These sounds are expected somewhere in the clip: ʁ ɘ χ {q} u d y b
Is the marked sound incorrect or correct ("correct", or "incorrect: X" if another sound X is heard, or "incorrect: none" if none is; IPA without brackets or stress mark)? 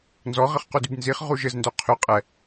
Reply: correct